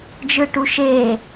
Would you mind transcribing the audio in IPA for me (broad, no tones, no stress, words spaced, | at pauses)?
d͡ʒɯʈuʃeː